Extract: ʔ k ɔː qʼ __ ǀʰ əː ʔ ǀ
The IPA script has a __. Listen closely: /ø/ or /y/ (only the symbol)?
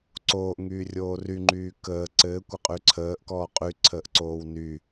y